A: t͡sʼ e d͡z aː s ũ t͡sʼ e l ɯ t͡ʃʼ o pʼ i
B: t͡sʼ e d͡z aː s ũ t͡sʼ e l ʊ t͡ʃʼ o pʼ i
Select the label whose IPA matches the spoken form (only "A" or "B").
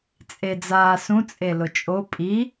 B